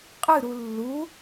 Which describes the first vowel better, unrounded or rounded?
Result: unrounded